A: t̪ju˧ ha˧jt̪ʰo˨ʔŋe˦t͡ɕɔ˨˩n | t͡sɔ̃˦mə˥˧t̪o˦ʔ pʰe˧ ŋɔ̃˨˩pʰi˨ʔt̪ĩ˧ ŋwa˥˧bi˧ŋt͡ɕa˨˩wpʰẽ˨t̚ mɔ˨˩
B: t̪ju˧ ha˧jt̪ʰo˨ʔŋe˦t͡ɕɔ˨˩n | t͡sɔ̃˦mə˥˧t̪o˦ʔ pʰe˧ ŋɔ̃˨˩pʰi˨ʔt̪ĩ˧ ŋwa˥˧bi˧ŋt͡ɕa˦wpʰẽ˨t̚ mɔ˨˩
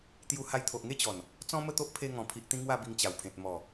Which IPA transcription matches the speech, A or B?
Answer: A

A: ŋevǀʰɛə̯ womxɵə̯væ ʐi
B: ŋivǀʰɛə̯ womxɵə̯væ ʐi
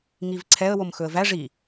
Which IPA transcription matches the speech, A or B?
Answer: B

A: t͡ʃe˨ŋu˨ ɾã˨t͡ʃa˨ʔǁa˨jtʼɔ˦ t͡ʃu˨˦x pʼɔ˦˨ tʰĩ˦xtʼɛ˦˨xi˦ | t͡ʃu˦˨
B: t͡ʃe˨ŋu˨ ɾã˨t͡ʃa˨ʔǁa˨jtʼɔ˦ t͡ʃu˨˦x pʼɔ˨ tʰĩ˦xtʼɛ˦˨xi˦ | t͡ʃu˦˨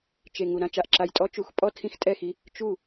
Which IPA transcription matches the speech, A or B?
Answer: A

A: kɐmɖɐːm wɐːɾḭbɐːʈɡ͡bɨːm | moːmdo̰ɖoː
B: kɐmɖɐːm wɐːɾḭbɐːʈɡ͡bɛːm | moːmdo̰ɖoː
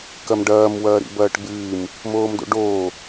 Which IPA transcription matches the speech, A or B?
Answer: A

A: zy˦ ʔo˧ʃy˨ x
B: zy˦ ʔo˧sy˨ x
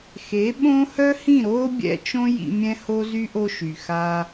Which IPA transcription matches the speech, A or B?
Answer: A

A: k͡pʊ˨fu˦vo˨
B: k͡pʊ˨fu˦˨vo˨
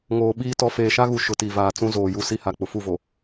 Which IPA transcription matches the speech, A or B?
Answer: B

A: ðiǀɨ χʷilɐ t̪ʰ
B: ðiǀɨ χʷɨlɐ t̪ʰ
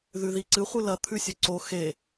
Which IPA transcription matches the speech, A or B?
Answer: B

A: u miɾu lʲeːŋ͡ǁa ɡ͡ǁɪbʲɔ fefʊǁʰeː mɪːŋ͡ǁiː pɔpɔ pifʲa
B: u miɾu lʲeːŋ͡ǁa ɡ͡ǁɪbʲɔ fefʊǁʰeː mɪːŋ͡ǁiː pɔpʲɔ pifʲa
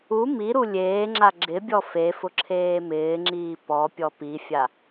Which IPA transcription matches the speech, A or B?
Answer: B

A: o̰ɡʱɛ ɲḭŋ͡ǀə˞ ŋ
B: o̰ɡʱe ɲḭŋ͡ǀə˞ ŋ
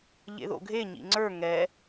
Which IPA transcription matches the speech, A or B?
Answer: B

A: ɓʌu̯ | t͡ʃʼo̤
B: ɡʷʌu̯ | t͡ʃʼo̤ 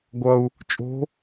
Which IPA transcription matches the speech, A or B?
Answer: B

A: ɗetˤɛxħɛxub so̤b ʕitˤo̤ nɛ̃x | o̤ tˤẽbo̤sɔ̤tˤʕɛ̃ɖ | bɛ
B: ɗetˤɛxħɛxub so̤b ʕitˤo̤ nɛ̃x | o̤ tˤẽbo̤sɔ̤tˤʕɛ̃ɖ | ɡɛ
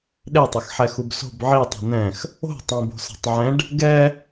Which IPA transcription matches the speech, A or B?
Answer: B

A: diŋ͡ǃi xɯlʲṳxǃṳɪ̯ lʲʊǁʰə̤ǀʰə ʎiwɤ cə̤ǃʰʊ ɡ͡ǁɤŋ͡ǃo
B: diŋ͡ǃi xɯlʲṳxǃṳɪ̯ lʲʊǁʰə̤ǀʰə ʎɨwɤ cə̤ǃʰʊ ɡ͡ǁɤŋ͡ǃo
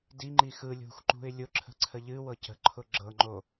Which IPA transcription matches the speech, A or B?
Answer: B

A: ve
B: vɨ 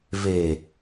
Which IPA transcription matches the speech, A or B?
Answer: A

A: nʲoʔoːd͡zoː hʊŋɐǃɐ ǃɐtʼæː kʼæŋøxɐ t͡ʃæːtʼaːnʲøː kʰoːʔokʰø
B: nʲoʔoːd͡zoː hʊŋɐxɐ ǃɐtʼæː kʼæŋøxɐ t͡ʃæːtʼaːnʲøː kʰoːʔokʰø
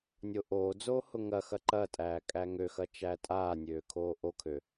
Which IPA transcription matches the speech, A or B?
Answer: B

